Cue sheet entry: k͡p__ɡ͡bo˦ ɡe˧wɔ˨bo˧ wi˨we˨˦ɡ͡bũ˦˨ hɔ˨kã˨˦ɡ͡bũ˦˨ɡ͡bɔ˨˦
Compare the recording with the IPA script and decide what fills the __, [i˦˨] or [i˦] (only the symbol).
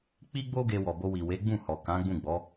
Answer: i˦